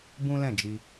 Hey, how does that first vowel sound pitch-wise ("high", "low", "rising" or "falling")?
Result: high